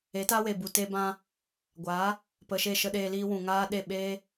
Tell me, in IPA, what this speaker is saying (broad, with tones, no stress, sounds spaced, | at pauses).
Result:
e˨˦ t aː˦ w e˨ b u˨ t e˧ b ã˧ | ɡʷ aː˨˦ | p ə˨ ʃ e˦˨ ʃ ə˦ ɗ eː˧ l iː˦ w ũ˨ ŋ aː˦ ɗ e˦˨ ɓ eː˦